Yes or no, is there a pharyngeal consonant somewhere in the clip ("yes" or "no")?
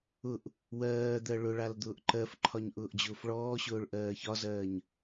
no